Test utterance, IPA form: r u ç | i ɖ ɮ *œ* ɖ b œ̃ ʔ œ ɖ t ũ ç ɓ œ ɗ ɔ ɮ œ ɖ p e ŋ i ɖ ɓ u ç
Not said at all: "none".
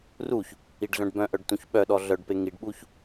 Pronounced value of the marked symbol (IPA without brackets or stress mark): œ̃